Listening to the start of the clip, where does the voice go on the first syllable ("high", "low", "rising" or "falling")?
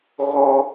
high